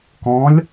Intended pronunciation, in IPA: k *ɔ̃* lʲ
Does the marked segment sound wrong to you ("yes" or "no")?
no